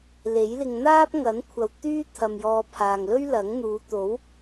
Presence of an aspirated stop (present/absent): present